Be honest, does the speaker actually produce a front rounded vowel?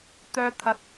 yes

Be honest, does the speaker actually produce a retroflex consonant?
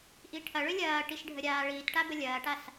yes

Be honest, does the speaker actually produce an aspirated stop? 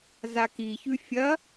no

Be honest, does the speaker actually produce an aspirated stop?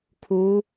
yes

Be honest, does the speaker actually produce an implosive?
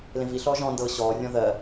no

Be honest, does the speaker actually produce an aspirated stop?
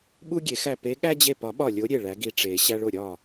no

